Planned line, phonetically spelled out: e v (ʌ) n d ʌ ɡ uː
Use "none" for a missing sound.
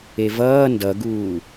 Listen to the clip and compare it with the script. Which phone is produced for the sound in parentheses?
ʌː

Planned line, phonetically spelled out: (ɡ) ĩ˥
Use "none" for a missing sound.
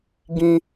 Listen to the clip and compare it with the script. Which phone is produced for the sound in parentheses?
ɡ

